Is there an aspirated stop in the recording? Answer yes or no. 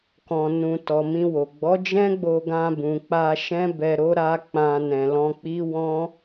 no